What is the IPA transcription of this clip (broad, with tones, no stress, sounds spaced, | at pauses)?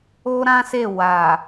o˦ ɾ ã˦ s e˦˨ w a˨